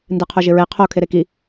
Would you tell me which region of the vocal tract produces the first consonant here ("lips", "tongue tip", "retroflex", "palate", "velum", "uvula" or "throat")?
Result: tongue tip